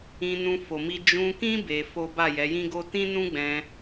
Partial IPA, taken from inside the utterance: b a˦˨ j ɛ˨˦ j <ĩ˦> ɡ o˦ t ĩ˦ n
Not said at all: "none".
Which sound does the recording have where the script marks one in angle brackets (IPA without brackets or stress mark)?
ĩ˦